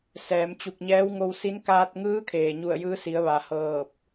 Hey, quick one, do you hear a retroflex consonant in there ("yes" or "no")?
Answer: no